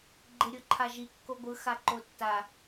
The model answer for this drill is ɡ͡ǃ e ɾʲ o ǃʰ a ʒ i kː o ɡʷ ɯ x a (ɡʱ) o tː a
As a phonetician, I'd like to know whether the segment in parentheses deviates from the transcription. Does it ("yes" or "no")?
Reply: yes